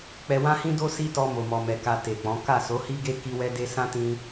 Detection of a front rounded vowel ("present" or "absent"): absent